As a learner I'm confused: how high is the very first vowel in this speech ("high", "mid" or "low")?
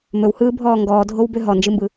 mid